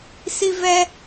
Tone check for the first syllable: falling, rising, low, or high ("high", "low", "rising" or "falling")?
high